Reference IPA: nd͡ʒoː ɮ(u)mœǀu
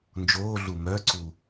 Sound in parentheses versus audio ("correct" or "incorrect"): correct